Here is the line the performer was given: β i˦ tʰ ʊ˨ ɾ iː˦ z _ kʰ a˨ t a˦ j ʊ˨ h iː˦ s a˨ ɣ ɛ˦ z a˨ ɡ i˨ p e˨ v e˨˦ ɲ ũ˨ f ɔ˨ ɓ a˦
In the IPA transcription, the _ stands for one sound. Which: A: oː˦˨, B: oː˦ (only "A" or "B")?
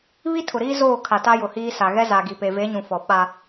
A